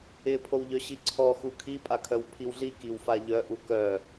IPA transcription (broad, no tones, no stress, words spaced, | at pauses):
ɪpʰowʎœ ɕiǀʰɔxu kʰi pʼakʰœwpʰiwɮi kiwfaʎœʔu kœ